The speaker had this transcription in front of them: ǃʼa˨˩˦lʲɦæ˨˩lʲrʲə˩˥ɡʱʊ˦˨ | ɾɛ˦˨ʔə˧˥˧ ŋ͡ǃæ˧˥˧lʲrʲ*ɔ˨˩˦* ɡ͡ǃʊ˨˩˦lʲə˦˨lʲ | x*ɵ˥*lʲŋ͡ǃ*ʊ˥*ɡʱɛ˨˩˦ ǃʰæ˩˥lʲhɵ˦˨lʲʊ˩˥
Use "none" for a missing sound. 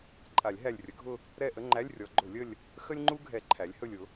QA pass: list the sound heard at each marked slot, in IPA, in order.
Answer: ɔ˨˩˦, ə˥, u˥

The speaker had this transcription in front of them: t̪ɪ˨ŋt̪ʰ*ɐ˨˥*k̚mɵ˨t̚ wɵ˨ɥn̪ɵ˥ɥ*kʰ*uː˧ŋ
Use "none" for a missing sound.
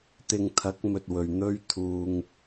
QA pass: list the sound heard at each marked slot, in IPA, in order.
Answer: ɐ˨˥, t̪ʰ

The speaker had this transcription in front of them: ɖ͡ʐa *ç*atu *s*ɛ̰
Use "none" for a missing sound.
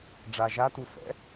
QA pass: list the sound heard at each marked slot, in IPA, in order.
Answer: ʒ, s

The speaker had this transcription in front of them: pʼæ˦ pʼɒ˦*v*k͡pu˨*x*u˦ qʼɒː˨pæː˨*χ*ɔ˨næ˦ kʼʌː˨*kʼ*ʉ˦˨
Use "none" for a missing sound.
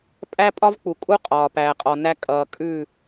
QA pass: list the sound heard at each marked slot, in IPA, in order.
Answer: v, kʼ, qʼ, kʼ

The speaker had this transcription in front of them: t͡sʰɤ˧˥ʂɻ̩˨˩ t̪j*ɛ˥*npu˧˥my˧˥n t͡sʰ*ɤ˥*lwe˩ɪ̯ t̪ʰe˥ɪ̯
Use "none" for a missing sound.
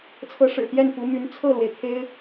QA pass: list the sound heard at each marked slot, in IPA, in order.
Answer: ɛ˥˩, ɤ˥˩

